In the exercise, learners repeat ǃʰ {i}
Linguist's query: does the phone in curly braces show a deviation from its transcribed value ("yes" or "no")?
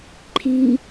no